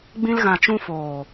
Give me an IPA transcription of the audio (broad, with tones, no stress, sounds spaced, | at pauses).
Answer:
ɡ͡b ĩ˧ l ɣ ã˨ t͡ʃ ũ˧ f oː˨